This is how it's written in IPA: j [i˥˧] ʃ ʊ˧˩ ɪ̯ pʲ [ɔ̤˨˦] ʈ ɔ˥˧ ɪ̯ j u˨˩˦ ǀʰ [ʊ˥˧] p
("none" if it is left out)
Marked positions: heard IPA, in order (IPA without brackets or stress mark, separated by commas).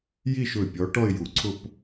i˥˧, ɔ˨˦, ʊ˥˧